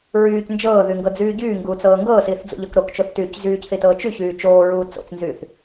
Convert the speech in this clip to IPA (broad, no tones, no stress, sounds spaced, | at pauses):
ɹ yː c n d͡ʒ ɤː ð y ŋ ɡ ɤ d͡z yː ɟ yː ŋ ɡ uː t͡s ɤː ŋ ɡ ɤː s iː θ d͡z ṵ ʎ ɤ k ɾ o k t͡ʃ o θ t yː c z yː c θ i t ɤː t͡ʃ y ç yː t͡ʃ oː ɹ uː t͡s o̰ t͡s n z yː θ